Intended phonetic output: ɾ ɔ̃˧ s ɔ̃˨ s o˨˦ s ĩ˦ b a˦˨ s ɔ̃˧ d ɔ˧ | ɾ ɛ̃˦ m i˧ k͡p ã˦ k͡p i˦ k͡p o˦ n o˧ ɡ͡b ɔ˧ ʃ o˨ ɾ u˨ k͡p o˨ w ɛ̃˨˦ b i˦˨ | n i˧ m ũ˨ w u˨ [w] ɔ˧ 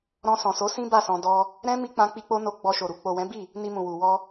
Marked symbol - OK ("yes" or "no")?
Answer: yes